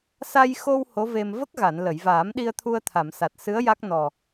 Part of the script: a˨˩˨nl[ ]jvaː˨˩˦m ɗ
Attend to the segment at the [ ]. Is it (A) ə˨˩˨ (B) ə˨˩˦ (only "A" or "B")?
A